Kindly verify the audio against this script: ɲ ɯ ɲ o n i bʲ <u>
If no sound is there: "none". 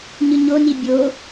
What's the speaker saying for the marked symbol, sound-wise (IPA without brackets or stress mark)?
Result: o